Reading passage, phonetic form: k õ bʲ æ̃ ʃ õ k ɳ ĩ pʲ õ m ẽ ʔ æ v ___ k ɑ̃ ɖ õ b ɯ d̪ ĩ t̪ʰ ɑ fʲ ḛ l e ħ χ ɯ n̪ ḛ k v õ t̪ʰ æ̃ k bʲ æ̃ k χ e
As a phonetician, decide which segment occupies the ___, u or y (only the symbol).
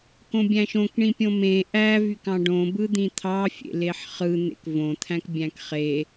y